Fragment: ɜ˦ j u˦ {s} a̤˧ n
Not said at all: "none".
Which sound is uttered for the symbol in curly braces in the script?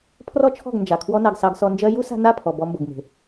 s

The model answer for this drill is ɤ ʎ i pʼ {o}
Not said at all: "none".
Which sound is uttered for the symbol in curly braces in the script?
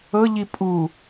u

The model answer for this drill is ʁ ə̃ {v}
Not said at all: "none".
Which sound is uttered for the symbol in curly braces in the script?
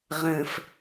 f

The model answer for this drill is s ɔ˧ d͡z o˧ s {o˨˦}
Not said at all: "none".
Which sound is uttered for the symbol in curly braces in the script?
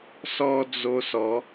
ɔ˨˦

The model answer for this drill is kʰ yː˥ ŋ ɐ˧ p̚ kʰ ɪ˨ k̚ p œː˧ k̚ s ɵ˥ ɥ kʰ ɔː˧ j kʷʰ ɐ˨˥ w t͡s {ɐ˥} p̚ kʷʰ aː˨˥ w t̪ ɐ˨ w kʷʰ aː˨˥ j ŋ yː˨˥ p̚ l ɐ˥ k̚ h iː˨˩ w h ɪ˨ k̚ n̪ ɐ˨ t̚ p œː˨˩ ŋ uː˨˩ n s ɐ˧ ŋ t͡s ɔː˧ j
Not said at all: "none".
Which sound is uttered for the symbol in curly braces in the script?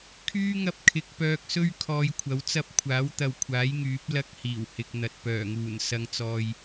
ɐ˥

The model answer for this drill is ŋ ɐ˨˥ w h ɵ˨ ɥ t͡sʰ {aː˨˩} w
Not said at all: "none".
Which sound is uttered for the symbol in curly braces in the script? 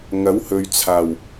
aː˨˩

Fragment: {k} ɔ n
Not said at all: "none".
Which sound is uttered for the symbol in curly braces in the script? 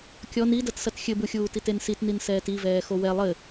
kʲ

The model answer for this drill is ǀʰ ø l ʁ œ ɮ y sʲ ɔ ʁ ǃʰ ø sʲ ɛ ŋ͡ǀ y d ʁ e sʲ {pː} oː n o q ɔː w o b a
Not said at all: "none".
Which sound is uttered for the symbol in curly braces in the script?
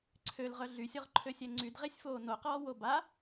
f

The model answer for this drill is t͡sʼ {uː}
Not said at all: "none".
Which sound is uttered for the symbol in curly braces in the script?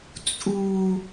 uː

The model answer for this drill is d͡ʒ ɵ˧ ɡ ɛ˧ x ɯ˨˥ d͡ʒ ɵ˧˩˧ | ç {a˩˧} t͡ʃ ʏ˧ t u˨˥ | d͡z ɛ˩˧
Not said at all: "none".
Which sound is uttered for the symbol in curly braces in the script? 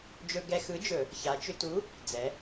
a˩˧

